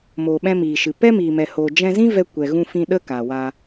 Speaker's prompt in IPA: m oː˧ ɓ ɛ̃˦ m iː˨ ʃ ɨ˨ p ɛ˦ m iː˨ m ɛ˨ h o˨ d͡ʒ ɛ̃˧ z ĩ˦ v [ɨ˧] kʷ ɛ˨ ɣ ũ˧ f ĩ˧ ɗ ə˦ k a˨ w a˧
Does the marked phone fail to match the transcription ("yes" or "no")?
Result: yes